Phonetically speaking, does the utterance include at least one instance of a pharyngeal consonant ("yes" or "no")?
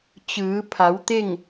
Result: no